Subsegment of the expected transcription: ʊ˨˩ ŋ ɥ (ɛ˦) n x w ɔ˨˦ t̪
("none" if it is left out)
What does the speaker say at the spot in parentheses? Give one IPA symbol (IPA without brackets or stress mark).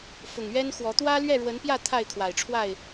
ɛ˦